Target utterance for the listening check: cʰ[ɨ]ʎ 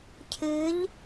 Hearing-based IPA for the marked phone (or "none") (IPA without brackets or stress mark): ɨ